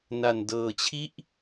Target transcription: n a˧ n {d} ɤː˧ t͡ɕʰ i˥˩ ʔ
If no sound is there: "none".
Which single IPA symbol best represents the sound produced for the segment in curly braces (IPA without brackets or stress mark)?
d